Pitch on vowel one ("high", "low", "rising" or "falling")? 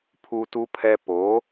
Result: high